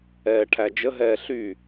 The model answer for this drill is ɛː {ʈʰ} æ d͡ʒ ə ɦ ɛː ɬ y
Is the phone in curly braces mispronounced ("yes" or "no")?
no